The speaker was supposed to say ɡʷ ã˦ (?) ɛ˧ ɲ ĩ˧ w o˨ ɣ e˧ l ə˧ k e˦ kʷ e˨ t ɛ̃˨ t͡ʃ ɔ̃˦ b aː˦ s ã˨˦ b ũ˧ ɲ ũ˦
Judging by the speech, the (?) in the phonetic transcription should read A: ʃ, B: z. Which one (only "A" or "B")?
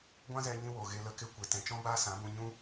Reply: B